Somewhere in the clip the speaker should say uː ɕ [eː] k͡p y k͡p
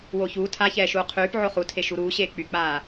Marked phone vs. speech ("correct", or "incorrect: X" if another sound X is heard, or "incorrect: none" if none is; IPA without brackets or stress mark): correct